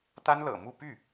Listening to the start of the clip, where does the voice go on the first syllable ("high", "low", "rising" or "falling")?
high